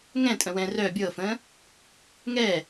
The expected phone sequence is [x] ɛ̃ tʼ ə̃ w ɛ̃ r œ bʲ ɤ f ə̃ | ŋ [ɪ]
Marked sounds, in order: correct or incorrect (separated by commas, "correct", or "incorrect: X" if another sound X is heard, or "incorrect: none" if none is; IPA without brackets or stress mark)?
incorrect: ŋ, incorrect: ɛ